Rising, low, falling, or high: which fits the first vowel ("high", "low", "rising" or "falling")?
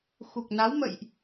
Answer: low